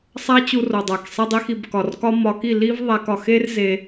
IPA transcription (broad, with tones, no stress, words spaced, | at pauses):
sˤæ˦t͡ɕu˧ro˨dˤæ˨k sˤi˧dˤi˧xi˨b kɒ˨rkɒ˦mɒ˧ ki˦˨li˦v ðˤæ˧k ɒ˨xe˦r ze˧